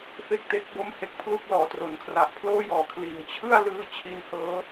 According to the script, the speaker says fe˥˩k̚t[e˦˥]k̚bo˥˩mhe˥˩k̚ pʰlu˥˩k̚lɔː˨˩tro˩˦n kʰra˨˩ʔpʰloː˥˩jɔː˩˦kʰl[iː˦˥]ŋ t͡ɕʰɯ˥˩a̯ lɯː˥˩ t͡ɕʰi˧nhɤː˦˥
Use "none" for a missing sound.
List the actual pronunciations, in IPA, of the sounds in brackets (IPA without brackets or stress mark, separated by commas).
e˦˥, iː˩˦